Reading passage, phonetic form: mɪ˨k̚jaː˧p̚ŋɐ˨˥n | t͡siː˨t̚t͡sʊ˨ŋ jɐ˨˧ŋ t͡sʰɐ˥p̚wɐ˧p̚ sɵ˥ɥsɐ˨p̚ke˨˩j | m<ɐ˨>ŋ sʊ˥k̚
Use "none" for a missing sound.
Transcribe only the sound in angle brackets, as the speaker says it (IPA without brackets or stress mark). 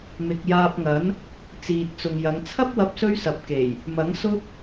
ɐ˨˥